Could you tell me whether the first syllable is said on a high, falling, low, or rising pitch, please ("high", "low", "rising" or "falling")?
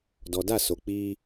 low